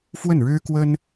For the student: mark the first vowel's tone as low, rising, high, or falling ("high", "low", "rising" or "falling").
falling